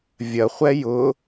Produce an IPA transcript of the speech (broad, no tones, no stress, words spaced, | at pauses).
vʲɐχʷɛ jʊ